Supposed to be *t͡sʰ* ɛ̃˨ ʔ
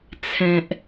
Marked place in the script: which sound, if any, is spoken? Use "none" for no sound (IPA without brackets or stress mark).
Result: t͡sʰ